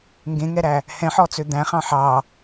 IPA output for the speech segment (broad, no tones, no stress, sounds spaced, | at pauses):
ŋ ɡ ẽ ŋ ɛ ɾ æ | h ɛ̃ ħ ɔ t͡s ø d̪ æ̃ χ ɑ̃ ħ ɑ